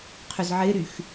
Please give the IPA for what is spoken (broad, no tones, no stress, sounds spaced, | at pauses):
qʰ ʏ z ʕ ɪ ɾ y x